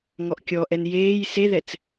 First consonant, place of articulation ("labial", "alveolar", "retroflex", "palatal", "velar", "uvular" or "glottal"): velar